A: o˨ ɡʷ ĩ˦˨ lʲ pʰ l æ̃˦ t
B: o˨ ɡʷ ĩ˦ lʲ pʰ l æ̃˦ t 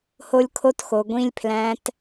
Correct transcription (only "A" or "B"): B